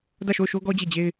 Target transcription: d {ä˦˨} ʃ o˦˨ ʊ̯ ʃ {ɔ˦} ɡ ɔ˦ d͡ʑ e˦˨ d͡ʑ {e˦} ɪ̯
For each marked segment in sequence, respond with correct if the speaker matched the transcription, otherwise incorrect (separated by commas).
correct, incorrect, correct